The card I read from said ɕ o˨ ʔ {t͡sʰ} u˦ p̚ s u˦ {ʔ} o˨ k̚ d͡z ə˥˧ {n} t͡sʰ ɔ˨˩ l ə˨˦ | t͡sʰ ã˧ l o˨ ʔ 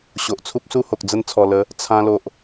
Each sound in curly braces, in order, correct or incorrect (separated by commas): correct, incorrect, correct